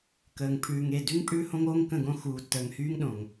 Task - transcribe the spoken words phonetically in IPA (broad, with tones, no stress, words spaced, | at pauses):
kəː˨ŋ pʰʉː˨ŋe˦˨ dʉ˦ŋ pʼʉː˦hõ˦ŋoː˦ŋ kə̃˦˨ɡõ˦ xuː˨tːəː˨ŋ hyː˦ŋɗõ˨ŋ